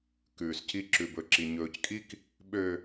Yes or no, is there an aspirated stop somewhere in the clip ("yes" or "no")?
no